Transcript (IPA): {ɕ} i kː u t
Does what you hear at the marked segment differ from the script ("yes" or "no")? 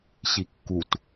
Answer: no